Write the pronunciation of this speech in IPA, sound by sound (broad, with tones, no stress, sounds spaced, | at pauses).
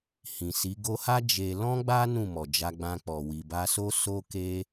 h ĩ˨ s i˨˦ ɡ o˧ h a˦ d͡ʒ e˧ l ɔ̃˦ ɡ͡b a˦ n ũ˦˨ m ɔ˨ d͡ʒ a˧ ɡ͡b ã˧ k͡p ɔ˨ w i˨ b a˧ s o˦ s o˦ k e˦